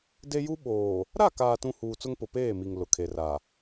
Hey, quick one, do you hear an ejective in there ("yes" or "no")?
no